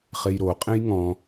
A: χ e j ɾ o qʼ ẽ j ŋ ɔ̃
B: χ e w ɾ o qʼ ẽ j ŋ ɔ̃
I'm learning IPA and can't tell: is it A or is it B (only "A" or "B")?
A